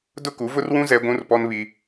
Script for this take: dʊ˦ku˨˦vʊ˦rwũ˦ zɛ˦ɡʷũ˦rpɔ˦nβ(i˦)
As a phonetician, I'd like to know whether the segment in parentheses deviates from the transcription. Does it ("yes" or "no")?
no